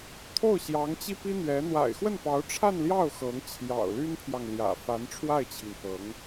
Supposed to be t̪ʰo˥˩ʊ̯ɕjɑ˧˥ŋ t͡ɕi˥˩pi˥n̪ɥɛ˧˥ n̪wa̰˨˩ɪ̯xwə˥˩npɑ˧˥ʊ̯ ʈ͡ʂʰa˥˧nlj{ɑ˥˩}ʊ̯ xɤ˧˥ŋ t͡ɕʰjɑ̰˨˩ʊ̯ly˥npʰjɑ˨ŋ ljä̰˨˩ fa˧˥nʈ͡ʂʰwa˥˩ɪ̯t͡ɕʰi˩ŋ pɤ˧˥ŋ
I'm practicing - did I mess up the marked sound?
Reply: no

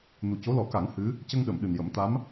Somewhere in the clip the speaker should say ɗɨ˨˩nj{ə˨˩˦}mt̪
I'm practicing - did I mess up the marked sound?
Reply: no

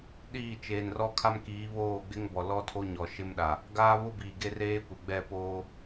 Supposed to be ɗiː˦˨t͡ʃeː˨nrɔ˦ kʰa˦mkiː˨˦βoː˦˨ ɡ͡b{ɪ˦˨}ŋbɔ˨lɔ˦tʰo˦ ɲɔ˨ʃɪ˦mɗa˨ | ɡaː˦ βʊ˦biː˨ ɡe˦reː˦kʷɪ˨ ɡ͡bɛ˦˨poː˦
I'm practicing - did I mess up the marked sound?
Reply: yes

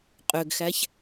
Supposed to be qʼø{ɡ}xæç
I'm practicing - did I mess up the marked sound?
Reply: no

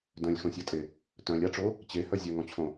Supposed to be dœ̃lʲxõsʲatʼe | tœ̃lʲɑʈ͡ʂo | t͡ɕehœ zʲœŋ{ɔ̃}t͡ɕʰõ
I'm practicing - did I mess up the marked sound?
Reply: no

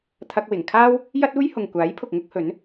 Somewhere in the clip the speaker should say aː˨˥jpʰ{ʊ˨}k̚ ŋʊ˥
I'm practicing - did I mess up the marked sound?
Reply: no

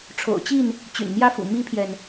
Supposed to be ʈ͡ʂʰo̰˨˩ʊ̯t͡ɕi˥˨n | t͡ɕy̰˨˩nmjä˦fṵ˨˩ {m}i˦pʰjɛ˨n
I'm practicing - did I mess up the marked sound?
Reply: no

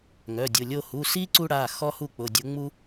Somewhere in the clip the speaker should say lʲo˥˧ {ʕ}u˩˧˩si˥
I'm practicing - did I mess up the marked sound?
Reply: yes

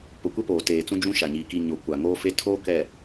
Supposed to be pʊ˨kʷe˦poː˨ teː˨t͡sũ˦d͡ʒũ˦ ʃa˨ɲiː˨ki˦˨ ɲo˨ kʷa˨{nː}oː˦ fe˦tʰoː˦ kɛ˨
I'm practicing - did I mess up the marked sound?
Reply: yes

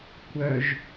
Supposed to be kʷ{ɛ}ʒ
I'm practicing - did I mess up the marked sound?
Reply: yes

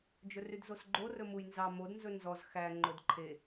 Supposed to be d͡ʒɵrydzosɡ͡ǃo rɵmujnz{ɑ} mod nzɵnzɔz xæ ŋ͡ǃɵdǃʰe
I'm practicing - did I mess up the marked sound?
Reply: no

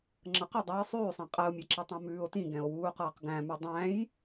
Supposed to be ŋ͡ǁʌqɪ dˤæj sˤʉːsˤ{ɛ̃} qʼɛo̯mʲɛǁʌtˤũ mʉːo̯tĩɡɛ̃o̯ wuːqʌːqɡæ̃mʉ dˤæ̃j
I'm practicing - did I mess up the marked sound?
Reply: no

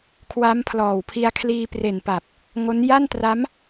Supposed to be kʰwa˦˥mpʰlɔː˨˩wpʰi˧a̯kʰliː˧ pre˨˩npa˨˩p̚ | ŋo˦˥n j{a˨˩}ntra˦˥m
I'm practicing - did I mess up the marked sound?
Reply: yes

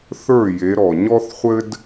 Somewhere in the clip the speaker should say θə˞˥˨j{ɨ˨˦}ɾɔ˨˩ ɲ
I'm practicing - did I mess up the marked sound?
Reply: yes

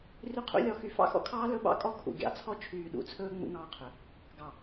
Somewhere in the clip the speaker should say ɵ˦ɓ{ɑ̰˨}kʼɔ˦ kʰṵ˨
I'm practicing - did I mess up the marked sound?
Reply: yes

